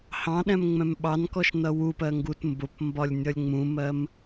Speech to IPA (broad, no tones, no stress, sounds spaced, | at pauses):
h ɑ̃ ɗ ɛ̃ m ŋ͡m ɛ̃ m ɓ ɑ n k ɔ ʃ n ʌ w u p ɜ ŋ ɡ u t m b ʊ p m b ɒ lʲ nʲ ʌ lʲ ŋ͡m ũ m ɜ m